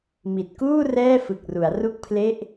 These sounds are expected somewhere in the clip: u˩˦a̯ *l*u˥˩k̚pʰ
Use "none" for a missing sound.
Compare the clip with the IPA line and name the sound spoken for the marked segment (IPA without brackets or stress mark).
r